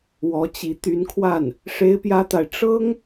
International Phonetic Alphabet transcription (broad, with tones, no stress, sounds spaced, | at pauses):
w ɔ˧˥ t͡ɕ i˧˥ t̪ y˧˥ n kʰ w a˥˩ n | ʂ e˥ ɪ̯ p j ä˥ t̪ a˨ ɪ̯ ʈ͡ʂ ɤ˥ ŋ